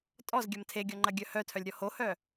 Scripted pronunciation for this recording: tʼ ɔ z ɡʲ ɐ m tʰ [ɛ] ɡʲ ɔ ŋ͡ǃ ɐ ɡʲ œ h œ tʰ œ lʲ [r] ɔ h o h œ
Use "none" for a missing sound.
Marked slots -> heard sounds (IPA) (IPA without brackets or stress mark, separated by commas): e, ɾʲ